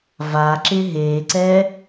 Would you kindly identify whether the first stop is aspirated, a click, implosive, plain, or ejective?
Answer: click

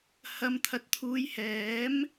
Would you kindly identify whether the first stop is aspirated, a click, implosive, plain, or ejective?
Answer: aspirated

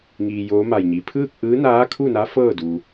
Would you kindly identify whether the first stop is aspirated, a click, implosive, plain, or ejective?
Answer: aspirated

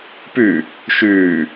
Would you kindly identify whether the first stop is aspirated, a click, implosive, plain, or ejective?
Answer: plain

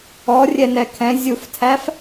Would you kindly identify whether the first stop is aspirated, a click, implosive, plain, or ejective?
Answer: aspirated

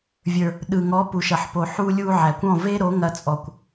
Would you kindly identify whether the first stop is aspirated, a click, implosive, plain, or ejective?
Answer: implosive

